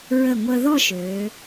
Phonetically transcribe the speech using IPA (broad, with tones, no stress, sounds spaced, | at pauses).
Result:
ɹ ə˧˩ ŋʷ ə˧ ð ɔ˥˧ ʃ ø˩˧